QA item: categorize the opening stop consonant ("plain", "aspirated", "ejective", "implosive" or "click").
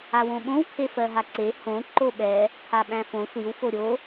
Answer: implosive